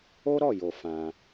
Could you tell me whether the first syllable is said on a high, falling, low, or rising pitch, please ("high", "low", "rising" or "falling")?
high